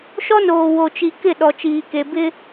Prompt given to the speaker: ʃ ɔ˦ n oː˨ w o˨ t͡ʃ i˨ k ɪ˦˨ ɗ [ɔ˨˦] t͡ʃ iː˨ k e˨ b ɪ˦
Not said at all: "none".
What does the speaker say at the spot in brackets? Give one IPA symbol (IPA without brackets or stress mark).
ɔ˨